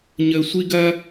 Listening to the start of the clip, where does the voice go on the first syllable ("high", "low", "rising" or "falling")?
high